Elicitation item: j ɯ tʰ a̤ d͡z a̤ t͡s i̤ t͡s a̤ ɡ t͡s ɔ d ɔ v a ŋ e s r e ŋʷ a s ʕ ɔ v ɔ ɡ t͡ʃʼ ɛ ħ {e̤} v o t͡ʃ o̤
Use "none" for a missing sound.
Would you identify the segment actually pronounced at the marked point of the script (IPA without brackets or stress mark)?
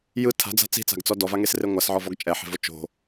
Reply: e̤